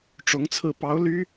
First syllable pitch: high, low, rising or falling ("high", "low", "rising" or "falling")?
rising